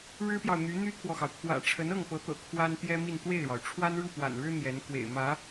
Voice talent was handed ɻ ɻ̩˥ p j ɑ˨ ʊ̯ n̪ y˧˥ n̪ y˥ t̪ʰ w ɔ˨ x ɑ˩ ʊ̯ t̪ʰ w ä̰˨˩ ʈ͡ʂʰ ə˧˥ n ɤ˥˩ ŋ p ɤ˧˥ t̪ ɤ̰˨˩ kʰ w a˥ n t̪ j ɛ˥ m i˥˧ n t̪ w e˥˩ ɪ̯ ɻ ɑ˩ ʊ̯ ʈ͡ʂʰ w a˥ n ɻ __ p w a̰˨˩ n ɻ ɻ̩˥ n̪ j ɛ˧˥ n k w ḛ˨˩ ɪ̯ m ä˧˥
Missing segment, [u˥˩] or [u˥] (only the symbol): u˥˩